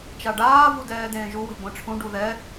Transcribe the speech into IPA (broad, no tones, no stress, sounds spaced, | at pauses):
t͡ʃ a ɖ aː v u d ɛː d ẽː ʒ u w e̤ ɡʷ ɛ̃ ʈ͡ʂʰ ũ ɖ u ð ɛ